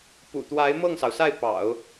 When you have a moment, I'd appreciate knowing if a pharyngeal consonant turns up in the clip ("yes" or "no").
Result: no